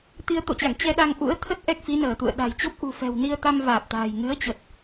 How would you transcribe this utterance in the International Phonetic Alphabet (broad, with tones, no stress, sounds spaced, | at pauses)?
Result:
t̪ i˧ ə̯ t̪ o̰˧˨ t͡ɕ a̰˧˨ ŋ t͡ɕ ɛ˧ ɗ a˧ ŋ ʔ ṵ˧˥ ə̯ t̪ʰ ə˦˥ t̚ ʔ ɛ˦˥ k̚ f i˨˦ n əː˧˩ t̪ ṵ˧˨ ə̯ ɗ a̤˨˩ j t͡ɕ o˦˥ p̚ ʔ ṳ˨˩ f ɛ̤˨˩ w n i˧ ə̯ t̪ a˧ m v aː˨˩ p̚ t̪ a̤ː˨˩ j ŋ ɨ˨˦ ə̯ t͡ɕ ə˨˩ t̚